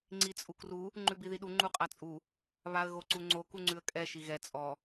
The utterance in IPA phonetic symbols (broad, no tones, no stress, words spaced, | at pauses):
ŋ͡ǀit͡sʼukru | ŋ͡ǃʉbiðiɗu ŋ͡ǃuqʼat͡sʼu | βaə̯ɣoǀuŋ͡ǀo kuŋ͡ǀʉə̯kʼɛ ʃiɣɛ t͡sʼɔ